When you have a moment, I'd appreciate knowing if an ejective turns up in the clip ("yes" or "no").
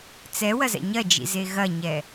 no